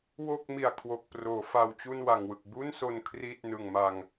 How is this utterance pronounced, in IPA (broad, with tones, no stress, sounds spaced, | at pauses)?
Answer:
w o˥˩ k̚ m i˨˩ a̯ kʰ w o˨˩ k̚ p r oː˩˦ f a˧ w t͡ɕ u˥˩ n w a˨˩ ŋ w ɯ˨˩ k̚ b u˥˩ n s o˧ n kʰ r i˥˩ t̚ n ɯ˨˩ ŋ m a˧ ŋ